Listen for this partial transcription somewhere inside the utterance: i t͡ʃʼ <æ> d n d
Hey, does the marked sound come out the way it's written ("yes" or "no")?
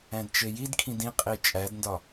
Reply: yes